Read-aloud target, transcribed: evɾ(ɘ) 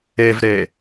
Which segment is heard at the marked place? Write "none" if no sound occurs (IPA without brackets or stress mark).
e